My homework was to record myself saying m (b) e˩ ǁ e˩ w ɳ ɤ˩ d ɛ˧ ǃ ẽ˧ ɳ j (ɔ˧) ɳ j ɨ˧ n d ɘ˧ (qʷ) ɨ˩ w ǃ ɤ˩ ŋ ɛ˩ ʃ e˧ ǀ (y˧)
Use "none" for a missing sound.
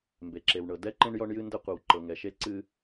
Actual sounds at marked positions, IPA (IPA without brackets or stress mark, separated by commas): b, ɔ˧, qʷ, ɨ˧